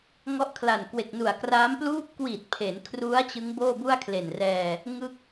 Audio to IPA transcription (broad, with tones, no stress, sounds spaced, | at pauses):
ŋ ɔ˦˥ ʔ kʰ l a˨˩ n k w e˨˩ k̚ n u˨˩ a̯ k r aː˦˥ m p l uː˦˥ p̚ k w iː˨˩ t̚ pʰ e˩˦ n kʰ r u˦˥ a̯ t͡ɕ ɯ˦˥ ŋ b oː˥˩ b u˥˩ a̯ kʰ l e˨˩ n r ɛː˧ | ŋ ɯ˥˩ k̚